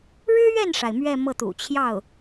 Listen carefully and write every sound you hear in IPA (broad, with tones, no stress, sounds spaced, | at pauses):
ɻ ɻ̩˥ ɥ ɛ˥˩ n ʂ a˩ ɪ̯ m ɥ ɛ˥˧ m ɤ˥˩ t̪ ṵ˨˩ t͡ɕʰ j ɑ˥˩ ʊ̯